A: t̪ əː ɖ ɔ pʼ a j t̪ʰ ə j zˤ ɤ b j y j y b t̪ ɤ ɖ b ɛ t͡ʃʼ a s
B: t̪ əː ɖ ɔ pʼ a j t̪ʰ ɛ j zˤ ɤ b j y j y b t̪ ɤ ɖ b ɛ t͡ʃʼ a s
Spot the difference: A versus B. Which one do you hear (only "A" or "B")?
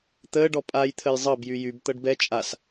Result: A